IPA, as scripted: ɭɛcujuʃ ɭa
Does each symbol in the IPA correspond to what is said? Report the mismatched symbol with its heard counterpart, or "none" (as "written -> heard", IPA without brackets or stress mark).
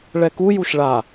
c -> k